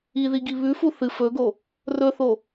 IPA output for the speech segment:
i ð i ɡ i β ʉ f u θ ɨ f ɵ ɡ o | r ɵ θ o

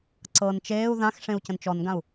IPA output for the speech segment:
ǀ ɤ n t͡ʃ eː u̯ ð ã x ʂ ẽ u̯ c ə̃ n t͡ʃ ɔ n ɡ ã u̯

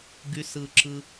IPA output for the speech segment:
ɡ y˨ s ɯ˩ ǁ ɯ˨

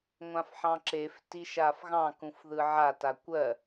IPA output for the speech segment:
ŋʷ ã f ħ ɑ̃ ǁ e f t i ʃ a f ɣ ɑ̃ k ũ f ð ɯ ʕ a t a kʷ ɜ

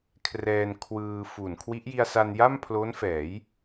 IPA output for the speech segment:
kʰ r ɛː˧ n kʰ w ɯː˧ f u˨˩ n kʰ w i˦˥ ʔ j i˧ a̯ s a˧ n j a˥˩ m pʰ l o˦˥ n f ɛː˩˦ j

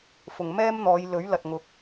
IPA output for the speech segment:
f ʊ˨ ŋ m ɛː˥ m n̪ ɔː˨˧ j l ɵ˨˥ ɥ l ɐ˨ t̚ ŋ ʊ˨˥ k̚

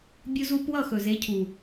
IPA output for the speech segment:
bʲ u˧ z u˧ p w ʌ˦˨ x ɵ˨ z e˨˦ cʰ u˨

